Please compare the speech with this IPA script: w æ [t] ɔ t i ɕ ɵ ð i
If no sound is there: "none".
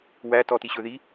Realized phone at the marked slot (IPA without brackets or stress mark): t